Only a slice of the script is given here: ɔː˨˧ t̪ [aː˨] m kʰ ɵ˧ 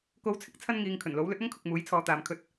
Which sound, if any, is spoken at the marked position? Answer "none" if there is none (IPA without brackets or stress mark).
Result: aː˨